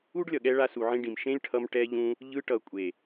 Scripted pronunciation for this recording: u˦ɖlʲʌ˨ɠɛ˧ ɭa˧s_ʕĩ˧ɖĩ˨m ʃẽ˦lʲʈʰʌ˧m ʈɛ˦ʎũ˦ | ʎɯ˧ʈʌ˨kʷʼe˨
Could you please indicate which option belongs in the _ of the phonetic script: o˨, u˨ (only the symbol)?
u˨